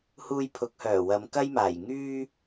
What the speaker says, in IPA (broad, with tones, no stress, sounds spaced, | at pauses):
h uː˧ j pʰ ʊ˨˥ k̚ h œː˨˩ w ɐ˨˧ m k ɐ˥ j m aː˨˩ j ŋ yː˧